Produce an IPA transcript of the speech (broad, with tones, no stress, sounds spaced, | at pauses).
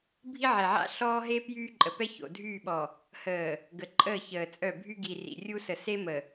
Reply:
bʱ i˦ ʕ ɛ˨ ʕ a̰˦ ɬ ɔː˦ ɦ e˦ p j yː˦ ǃʼ ə˨ p ɛ˦ ç o̰˨ dʱ yː˦˨ ɓ ɔ˨ | h əː˨ | ɡ ə˨ ǃʼ əː˦˨ ç əː˨ t͡sʼ œ˦˨ bʱ y˦ ɡ i˨ r ḭ˨ rʲ u˦ s ə˨ s e˦ m ə˨